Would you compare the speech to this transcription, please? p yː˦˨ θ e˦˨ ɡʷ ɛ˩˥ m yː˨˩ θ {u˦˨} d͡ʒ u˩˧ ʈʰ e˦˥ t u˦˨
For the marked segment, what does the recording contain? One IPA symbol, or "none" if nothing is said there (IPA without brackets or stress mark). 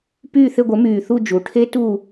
u˦˨